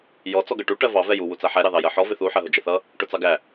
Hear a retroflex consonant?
yes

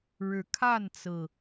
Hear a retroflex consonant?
yes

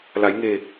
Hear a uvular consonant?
no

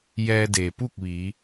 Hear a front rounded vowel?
no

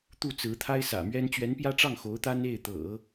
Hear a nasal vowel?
no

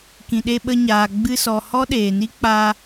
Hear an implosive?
yes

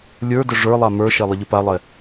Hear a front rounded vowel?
yes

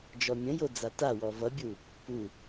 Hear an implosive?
no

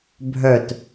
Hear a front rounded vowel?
yes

